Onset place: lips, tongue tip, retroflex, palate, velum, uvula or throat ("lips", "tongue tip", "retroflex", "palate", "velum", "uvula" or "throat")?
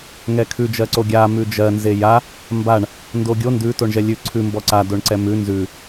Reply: velum